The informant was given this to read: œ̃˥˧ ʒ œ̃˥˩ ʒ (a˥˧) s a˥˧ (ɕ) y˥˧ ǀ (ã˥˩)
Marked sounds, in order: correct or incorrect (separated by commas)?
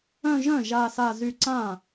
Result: correct, incorrect, correct